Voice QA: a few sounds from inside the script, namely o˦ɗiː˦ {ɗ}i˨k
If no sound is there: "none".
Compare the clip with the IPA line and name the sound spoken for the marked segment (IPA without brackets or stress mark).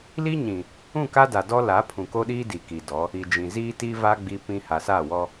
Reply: d